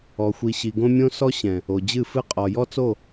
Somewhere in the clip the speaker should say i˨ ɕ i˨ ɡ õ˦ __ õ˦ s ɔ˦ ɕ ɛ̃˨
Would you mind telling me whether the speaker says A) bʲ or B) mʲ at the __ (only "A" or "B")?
B